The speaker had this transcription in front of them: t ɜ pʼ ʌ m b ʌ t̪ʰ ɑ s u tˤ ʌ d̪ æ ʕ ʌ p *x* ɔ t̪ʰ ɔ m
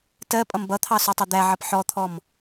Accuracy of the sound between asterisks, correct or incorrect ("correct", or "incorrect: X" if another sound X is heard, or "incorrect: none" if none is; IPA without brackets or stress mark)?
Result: incorrect: ħ